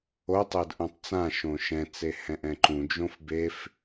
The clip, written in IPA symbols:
otˤed ʔõtˤt͡sãʃõ ʃɛ̃t͡se hɛ̃ʔɛ̃ǃũd͡ʒõf bef

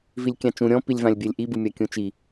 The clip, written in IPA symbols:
vilʲkʲãt͡ʃũ ɾʲɔ̃pilʲvãlʲ bʲɛlʲʔibɯ mʲakʲũt͡ʃi

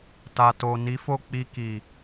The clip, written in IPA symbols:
ta˨to˨ ni˨˦fo˦˨ k͡pi˧ki˨

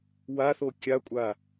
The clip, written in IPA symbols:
waθo kʲakʷʼa

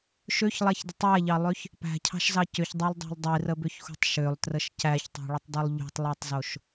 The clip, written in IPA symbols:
ʃøçlˠæçdətˤ æʎɑlˠøç | pæ̤cʰɑ̤ʃzɑ cʏçdˤælˠdˤæ̤lˠ dˤirəbʏçxṳtˤ ʃølˠtrəʃ cæçtˤɑ̤ɭətˤdˤulˠ ʎṳtˤlˠætˤzoʃ

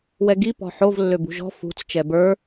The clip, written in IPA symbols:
wɛɡi pɔ̤ħov lːøbṳʒɔ̤ fṳt͡s t͡ʃɛbə˞

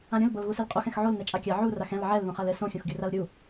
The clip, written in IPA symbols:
ãɾʲũl bolɣusɨlqʼox ɛ̃xʕol nɛt͡ʃʼakʲa ʕu raxɛ̃l ʕɛl ðõχalɘ sõ xʲõxɡʲuralɾʲu

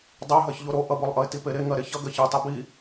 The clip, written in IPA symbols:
dˤœɦɜç ʎoɾo ʔʌbolˠʔʌɪ̯ tipeɾe ŋɜɾeçʌ ɡɜçɜ tˤibi

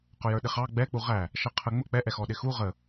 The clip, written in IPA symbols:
qʊjə˞ɗɪχɑ ɡ͡bɛk͡pu ʁæ | ʃʌqʰə ŋ͡mʊ k͡pɛʔɛxɔ ɗɪxu ʁə

